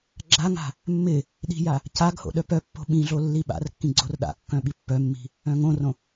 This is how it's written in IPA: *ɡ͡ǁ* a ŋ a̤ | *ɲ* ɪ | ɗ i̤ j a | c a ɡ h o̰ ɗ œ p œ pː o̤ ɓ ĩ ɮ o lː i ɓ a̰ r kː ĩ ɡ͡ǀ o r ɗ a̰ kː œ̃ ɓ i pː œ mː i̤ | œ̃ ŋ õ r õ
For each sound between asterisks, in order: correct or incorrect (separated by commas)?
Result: correct, incorrect